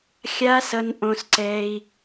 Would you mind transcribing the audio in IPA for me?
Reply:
xʲ a˦ s ʌ˧ n ʔ õ˧ s ǀ ɛ˧ i̯

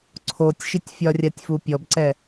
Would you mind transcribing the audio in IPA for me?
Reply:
ǀʰ o tʲ ʃ i tʲ fʲ ɒ rʲ a tʲ f u pʲ ɔ b ǀ ɛ

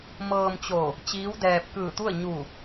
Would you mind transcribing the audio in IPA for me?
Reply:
m ɤː˧ m t͡ɕ o˧˩ | t͡ɕ iː˧˥ w d ɛː˧ p̚ k ɯː˧˩ t̪ u˥˨ ə̯ ɲ u˧˩

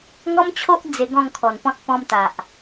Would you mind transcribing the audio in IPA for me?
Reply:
ŋ ɔ˦ m t͡ɕʰ o˦ ʔ d͡z e˧ ɡ ɔ̃˥˧ ŋ kʰ ɔ˨˩ n p ɔ̃˦ t̚ p ɔ̃˧ m t̪ a˨ ʔ

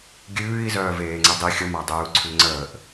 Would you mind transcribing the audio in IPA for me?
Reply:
ɡʲ ʉː i̯ z œː v eː ŋ͡ǀ e dˤ i xʲ ə m a dˤ ʉː u̯ ǀʰ ʉ ŋ͡ǀ əː ʔ

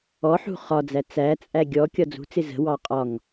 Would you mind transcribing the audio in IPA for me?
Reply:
ɔ ħ ṳ χ ɒ d͡z æ t͡s æ t͡sʼ æ ɡʲ ɔ kʲ ɒ d͡z ṳ t͡s ɪ z ə̤ w ɑ qʼ ɒ ŋ

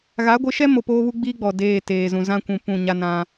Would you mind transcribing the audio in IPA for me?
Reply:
ɣ a˨˦ ɡʷ ɪ˨˦ ʃ ɛ˦ m o˨ p oː˦ β u˦ ɡ͡b iː˦ ɡ͡b ɔ˨ d eː˦˨ t eː˨ z ũ˨ z ã˦ kʷ ũ˨ p ũ˦˨ ɲ a˦ n ã˦

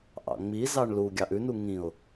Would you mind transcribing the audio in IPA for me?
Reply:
ʔ ɑ̰ ŋ͡m i z ɑ ɳ l u ɡʲ ɑ ʔ ʉ n u ŋ ĩ ʊ̯

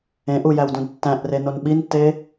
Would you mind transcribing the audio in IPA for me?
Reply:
ẽ ʔ u j æ w d ũ d tː æ̃ ʔ r e n o n ɓ i n tː e

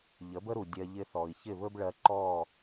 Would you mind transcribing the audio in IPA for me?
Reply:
ʎ ə˩˥ b ə˥ ɾ u˩ dʲ ɜ˧ ʎ ɪ˧ θ ɔ˩ i̯ ç ɪ˥˩ β ɵ˥ b ɭ ɜ˧ ǃ ɔ˥˩

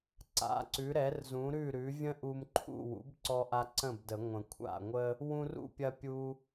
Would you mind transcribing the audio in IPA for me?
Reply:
ǀ a̰˩˥ ǀ ʉ˩˥ ɾ ɛ˩˥ r z ũ˩˥ ɾ ʉ˥˩ ɾ ʉ˩˥ vʲ ə̃˥ ʔ u˧ m ǃʰ ṵ˥˩ w ṵ˩˥ b ǀ ɔ˧ ʔ a˧ ǀ ə̃˥˩ b d ə˨˩˦ ŋʷ ə̃˨˩˦ kʷʰ a̰˥˩ ŋʷ ə˥ | w ũ˧ r ṵ˥˩ pʲ ɐ˧ pʲ u˧

